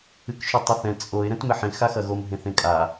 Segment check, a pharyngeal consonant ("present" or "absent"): present